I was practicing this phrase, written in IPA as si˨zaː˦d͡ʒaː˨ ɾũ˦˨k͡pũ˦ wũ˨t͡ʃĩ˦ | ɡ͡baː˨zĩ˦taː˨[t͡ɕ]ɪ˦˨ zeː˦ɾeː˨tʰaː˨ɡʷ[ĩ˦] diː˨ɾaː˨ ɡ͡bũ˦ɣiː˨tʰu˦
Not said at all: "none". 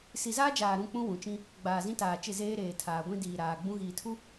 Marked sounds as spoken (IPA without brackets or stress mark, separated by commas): t͡ʃ, ĩ˦